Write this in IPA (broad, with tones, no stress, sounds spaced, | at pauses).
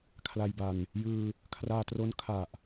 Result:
kʰ l a˧ j b a˧ n | j ɯː˧ | kʰ r aː˧ t r o˦˥ n kʰ a˨˩ ʔ